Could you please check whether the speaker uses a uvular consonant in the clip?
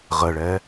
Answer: yes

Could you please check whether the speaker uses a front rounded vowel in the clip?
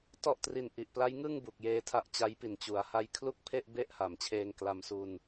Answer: no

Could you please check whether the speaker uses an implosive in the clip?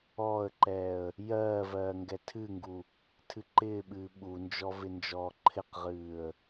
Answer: yes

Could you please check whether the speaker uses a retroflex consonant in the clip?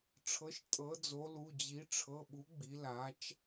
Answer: yes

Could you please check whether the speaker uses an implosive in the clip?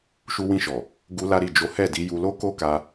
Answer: no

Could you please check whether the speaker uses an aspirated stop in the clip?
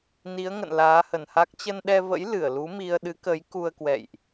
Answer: no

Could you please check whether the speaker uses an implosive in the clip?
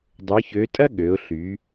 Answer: yes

